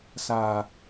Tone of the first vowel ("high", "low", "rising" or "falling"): low